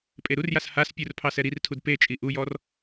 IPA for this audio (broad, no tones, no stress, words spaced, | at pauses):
pʼeɾurjas haspʲur pʰɑsɛɾirtʰud pet͡ʃʼi ʔujɔr